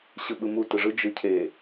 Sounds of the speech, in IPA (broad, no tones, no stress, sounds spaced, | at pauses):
ɕ ɯ ɓ ɯ m u t ɯ ʐ ɯ d͡ʒ ɯ cʰ e